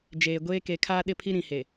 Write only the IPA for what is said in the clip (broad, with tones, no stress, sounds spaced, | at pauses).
d͡ʒ eː˨ ɡʷ eː˦ k e˨ kʰ aː˦ ɗ ɪ˦˨ pʰ i˦ ɾ ĩ˨ h e˨